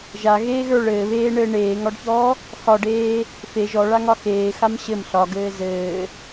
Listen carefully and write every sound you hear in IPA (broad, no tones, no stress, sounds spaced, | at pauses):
ʒ a ɣ eː ɣ ə˞ ɭ ɘː β eː ɳ ɘː ɳ eː ŋ ɒ ɖ ç ɔː | x ɒ ɖ eː | f e ʒ ɔ ɭ a ŋ ɒ x eː x a m ɕ ɘ m ɬ ɒ ɡ ɘː z ɘː